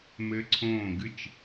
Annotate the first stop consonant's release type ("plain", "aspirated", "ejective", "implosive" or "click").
click